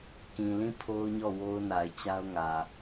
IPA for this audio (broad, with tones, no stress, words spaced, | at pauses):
kĩ˨lĩ˦˨ pʰo˦ʊ̯ɲɔ˦˨ wo˦ʊ̯ na˨ɪ̯t͡ɕa˦ʊ̯ŋä˨